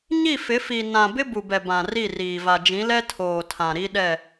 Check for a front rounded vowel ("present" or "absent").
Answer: absent